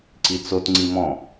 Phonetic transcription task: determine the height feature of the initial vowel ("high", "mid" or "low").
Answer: high